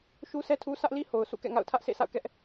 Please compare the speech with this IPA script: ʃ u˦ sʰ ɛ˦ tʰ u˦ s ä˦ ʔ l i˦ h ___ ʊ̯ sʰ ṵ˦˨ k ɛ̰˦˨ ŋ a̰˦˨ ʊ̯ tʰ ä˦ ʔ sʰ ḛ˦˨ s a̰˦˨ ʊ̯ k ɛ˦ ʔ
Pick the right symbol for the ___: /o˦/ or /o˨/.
o˨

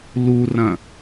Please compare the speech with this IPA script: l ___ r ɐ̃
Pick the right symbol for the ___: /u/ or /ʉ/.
u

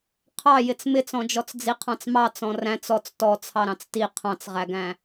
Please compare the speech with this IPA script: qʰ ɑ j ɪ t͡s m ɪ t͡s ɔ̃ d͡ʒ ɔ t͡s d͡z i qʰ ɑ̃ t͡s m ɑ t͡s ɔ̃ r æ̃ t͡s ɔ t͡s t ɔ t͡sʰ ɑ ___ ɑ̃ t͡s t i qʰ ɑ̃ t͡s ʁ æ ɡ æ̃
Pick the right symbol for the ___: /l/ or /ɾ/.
ɾ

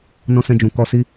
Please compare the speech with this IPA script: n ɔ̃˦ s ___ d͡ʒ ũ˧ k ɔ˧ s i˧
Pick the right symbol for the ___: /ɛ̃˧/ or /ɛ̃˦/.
ɛ̃˦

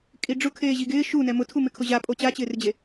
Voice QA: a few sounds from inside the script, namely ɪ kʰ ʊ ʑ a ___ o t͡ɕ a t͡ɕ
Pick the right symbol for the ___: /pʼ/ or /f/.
pʼ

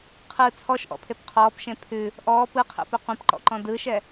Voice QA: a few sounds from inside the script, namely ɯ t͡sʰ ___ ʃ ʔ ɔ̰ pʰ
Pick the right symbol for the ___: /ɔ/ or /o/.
ɔ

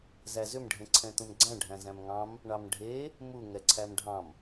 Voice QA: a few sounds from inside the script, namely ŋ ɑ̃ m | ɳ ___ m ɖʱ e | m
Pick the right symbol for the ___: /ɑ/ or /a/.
ɑ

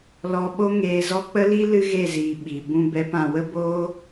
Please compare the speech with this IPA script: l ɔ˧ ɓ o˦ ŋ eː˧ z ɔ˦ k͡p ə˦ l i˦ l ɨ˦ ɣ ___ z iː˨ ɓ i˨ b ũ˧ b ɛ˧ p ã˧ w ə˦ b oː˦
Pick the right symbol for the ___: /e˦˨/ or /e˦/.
e˦˨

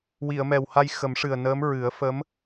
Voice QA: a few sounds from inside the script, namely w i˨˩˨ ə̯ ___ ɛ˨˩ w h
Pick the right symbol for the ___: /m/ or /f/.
m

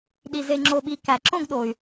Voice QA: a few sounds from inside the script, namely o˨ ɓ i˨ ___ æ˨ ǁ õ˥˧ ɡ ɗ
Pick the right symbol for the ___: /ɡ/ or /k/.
k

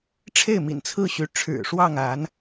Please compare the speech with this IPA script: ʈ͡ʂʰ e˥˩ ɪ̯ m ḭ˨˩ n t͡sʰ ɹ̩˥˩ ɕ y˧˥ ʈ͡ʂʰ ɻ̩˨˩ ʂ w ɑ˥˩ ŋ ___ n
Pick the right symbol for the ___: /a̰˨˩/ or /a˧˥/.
a˧˥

